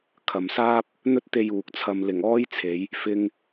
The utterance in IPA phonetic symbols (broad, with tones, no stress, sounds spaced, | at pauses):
kʰ ɐ˨ m s aː˥ p̚ | n̪ ɵ˥ t̚ t̪ e˧ j uː˨ k̚ t͡sʰ ɐ˧ m l ɪ˨˩ ŋ ɔː˥ j t͡sʰ e˨˧ j | f ɪ˧ ŋ